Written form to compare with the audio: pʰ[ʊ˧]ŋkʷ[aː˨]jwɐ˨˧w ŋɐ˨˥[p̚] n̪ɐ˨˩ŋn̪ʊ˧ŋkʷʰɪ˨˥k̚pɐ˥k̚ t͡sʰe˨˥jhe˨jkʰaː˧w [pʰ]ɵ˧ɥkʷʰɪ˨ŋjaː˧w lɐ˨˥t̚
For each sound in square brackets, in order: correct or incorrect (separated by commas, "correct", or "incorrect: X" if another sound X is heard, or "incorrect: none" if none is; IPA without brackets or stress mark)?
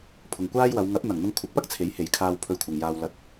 incorrect: ʊ˨, incorrect: aː˥, correct, correct